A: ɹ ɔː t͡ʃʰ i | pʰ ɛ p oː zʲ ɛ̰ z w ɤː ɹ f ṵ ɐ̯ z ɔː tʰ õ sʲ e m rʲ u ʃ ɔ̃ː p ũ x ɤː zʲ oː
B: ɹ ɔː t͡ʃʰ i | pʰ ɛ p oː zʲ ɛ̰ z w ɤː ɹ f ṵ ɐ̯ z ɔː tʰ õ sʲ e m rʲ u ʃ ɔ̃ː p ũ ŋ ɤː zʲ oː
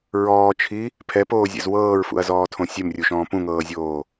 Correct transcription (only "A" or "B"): B